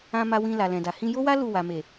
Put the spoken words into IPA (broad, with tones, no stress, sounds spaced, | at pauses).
ã˧ m a˧ w ĩ˧ l a˨ l ɛ̃˨ d a˨ h ĩ˧ j o˦ w a˦ l u˦˨ w a˨ m e˨